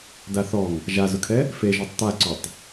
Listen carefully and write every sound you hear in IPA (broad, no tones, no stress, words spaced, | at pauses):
daθɔŋ | ʒazʊkʰɛ | feʒɔtˤ t̪aǀotˤ